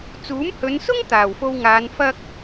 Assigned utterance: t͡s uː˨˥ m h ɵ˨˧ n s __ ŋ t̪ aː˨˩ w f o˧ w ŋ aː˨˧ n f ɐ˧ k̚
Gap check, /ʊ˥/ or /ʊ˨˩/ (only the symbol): ʊ˥